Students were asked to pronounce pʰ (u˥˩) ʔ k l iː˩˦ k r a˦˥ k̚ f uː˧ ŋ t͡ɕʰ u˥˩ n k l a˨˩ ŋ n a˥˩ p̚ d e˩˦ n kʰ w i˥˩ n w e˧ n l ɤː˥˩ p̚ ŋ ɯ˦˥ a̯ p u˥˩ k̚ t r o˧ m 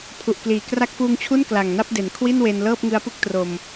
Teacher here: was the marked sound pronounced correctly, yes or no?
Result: no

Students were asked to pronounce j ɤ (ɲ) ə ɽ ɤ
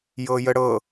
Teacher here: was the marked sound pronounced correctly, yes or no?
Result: no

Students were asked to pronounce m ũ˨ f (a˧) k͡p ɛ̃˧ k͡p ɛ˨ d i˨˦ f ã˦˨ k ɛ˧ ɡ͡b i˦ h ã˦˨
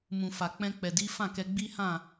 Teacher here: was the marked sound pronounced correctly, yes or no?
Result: no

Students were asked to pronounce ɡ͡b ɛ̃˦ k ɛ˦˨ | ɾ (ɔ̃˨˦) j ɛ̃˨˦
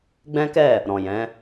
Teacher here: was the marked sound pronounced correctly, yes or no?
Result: no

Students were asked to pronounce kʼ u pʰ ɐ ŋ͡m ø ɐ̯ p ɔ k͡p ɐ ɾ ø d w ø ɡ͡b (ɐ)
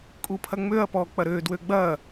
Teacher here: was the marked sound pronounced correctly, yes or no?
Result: yes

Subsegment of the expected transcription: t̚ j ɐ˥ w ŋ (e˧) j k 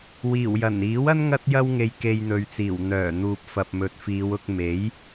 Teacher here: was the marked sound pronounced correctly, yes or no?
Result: yes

